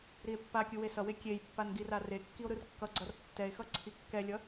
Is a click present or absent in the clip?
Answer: present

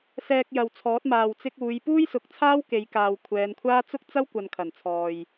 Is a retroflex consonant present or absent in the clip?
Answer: absent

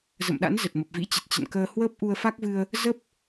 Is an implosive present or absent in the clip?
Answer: present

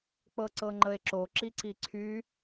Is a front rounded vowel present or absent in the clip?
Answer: present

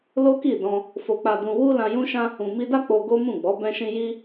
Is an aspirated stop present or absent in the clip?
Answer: absent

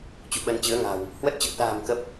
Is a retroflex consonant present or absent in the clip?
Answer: absent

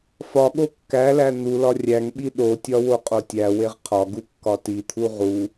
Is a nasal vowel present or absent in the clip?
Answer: absent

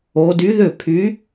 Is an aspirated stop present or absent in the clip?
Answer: present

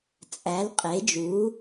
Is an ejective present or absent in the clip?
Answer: present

